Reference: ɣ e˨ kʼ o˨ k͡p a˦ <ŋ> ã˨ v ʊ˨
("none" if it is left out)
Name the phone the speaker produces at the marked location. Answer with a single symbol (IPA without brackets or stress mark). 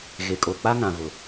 ŋ